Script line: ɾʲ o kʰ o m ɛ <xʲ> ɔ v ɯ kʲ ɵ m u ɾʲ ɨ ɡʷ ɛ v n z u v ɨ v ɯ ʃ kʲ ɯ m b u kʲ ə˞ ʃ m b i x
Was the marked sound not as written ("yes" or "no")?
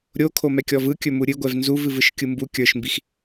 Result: yes